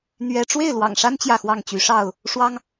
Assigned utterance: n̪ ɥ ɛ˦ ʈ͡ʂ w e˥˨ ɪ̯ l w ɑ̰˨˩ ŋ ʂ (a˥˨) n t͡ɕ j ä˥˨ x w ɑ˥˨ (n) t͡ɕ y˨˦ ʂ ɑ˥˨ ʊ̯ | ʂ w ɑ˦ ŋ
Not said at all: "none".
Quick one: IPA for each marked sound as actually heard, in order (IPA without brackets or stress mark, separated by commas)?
a˦, ŋ